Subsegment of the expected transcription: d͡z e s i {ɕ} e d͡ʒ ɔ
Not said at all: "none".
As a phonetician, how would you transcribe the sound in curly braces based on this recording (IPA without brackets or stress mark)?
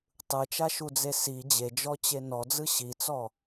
d͡ʑ